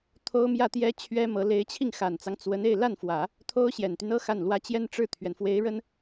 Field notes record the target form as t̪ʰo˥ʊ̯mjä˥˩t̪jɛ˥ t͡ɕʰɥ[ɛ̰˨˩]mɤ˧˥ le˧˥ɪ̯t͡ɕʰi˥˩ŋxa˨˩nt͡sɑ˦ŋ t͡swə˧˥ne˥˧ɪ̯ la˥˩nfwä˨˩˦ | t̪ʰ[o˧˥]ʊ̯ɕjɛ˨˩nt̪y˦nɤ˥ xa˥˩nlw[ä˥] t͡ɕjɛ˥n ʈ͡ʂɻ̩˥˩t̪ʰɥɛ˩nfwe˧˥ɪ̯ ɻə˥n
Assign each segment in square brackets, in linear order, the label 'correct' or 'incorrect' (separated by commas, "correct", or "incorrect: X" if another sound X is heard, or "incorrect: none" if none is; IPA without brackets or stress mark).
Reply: incorrect: ɛ˥, incorrect: o˥, correct